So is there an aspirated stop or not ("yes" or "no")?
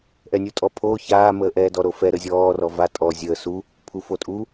yes